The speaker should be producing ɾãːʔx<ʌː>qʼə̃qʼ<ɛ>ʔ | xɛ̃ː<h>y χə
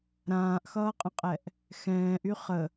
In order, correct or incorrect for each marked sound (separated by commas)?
correct, correct, incorrect